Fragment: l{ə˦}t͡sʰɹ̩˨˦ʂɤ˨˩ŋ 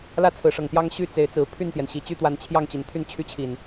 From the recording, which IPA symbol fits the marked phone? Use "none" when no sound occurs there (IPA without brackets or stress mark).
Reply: ä˦